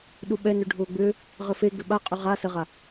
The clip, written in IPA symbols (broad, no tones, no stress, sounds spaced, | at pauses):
ɗ u ɓ ɛ n ø ɖʱ ʊː ɡ͡b ʏ | ʁ ə f e ɡ ʏ ɓ a qʼ ʏ ʁ a s ə ʁ a